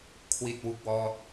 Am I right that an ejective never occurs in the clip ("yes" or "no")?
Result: yes